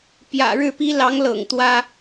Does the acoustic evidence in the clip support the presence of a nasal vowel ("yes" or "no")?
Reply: no